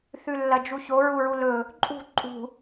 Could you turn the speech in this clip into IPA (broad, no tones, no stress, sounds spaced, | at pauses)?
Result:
θ ʉ lː ɐ d͡ʒ u ç o ɹ u ɹ u l ɵ | ǃʼ ṳ ǃʼ ṳ